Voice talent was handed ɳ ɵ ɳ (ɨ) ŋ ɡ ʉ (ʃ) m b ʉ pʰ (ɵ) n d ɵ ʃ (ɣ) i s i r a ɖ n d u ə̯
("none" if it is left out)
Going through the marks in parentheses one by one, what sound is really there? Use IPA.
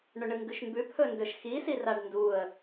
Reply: ɨ, ʃ, ɵ, x

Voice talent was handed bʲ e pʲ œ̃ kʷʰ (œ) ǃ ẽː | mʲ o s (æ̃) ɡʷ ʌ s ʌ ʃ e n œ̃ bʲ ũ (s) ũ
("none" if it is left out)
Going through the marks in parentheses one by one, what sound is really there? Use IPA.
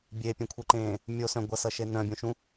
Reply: œ, œ̃, ʃ

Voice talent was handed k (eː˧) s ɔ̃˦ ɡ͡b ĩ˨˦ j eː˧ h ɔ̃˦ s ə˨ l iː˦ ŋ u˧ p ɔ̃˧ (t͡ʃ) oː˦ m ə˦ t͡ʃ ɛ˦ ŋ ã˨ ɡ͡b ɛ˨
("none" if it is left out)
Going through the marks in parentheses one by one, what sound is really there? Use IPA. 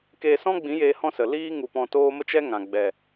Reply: eː˧, t

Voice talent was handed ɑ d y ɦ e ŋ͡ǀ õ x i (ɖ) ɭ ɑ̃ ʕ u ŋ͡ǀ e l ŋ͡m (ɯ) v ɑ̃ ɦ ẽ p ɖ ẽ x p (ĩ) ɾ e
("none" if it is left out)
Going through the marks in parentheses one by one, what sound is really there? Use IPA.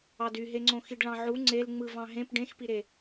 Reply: ɖ, ɯ, i

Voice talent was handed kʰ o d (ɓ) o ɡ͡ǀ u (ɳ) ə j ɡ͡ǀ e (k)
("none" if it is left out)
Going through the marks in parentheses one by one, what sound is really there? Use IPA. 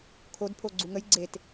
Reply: pʰ, ŋ, t

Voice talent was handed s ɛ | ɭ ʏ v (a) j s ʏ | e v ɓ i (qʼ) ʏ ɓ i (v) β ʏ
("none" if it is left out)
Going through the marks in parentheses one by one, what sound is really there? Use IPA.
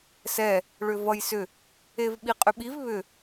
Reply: ʌ, qʼ, v

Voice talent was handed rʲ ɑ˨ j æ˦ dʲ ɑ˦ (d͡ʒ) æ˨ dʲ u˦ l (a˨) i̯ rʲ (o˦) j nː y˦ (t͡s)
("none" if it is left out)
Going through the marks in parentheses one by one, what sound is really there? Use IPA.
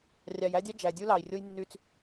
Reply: d͡ʒ, ɑ˨, o˦, t͡s

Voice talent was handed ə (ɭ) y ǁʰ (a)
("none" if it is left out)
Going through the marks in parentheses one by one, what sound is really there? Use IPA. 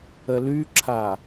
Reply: l, a

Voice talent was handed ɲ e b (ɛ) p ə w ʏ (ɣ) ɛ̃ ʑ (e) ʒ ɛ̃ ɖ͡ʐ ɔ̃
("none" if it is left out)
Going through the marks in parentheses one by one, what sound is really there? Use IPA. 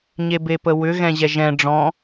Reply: e, ɣ, ɛ

